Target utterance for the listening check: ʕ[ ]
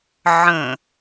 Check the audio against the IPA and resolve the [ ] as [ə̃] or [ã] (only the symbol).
ə̃